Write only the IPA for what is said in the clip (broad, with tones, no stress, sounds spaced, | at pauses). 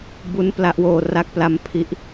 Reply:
b u˧ n p l a˦˥ ʔ w oː˧ r a˦˥ k̚ p l a˧ m pʰ i˦˥ ʔ